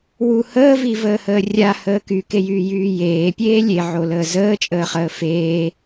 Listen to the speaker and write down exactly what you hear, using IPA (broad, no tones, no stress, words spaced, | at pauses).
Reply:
wu həːvivəːhəː rʲahəː kykejyːjyː jeːpʲeː lʲeʕoləː zəːt͡ʃʼəːχəː feː